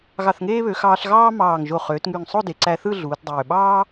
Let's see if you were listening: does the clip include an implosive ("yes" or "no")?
yes